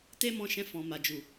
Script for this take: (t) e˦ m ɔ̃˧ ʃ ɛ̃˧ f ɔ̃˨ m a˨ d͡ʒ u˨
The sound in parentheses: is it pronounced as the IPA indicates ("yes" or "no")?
yes